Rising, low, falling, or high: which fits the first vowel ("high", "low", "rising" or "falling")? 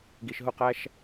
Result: low